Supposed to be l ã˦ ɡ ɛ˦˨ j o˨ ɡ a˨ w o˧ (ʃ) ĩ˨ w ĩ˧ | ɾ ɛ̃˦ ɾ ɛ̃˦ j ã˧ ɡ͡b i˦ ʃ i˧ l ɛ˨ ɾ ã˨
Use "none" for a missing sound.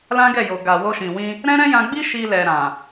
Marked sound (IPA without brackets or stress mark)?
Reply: ʃ